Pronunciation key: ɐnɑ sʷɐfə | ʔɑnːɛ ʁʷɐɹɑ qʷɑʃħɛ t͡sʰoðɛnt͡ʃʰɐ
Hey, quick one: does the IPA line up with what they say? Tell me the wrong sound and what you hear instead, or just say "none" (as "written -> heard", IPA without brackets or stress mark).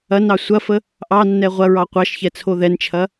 ħ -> ç